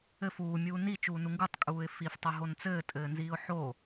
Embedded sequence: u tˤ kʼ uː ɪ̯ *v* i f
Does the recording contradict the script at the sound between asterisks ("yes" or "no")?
yes